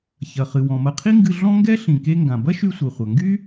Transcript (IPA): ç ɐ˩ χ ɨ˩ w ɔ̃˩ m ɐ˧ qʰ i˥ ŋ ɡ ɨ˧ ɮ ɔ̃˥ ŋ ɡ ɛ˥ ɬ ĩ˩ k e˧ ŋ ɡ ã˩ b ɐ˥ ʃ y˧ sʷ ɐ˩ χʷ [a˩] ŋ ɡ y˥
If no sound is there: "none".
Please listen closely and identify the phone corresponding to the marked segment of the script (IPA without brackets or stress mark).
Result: ɐ˩